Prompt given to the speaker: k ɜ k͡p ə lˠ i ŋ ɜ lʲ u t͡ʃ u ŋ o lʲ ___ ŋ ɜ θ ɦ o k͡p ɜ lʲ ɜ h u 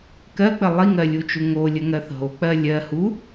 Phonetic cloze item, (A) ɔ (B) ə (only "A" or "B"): B